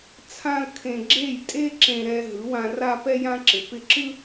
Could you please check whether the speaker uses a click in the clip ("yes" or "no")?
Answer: yes